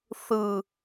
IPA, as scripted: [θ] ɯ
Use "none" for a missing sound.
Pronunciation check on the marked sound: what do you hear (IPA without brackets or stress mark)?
θ